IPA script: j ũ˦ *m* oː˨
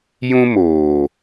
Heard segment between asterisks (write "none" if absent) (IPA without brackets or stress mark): m